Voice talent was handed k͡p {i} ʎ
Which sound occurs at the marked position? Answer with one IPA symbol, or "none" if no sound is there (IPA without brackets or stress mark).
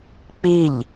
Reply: i